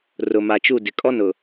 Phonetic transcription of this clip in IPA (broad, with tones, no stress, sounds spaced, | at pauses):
r ʊ˨ m a˨ t͡ʃ u˦˨ d ɪ˨ kʼ ɔ˦ n ʊ˨